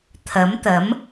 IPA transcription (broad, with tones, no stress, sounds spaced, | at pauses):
t̪ʰ ɐ˨˥ m t̪ ɐ˨˥ m